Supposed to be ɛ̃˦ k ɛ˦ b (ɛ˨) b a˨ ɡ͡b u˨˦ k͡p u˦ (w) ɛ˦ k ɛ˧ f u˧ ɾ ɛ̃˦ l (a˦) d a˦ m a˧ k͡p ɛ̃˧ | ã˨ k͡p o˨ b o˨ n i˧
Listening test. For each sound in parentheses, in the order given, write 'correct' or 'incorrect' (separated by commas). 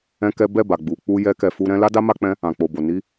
incorrect, incorrect, correct